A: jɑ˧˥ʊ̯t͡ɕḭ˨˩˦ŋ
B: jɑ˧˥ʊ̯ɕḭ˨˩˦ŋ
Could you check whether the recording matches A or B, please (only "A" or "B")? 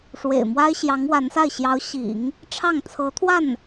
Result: B